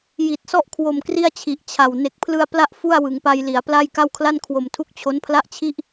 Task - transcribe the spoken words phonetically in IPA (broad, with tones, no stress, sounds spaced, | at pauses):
j i˨˩ t̚ s ɔ˥˩ ʔ kʰ w o˨˩ m k r i˥˩ a̯ t͡ɕʰ i˨˩ ʔ t͡ɕʰ a˨˩ w n e˨˩ k̚ pʰ l ɯ˧ a̯ p l a˦˥ ʔ f u˥˩ a̯ w ɯ˩˦ ŋ p a˧ j l i˩˦ a̯ p l a˥˩ j k a˥˩ w kʰ l a˥˩ n kʰ w o˨˩ m tʰ u˦˥ k̚ t͡ɕʰ o˦˥ n pʰ l a˥˩ ʔ t͡ɕʰ i˥˩ ʔ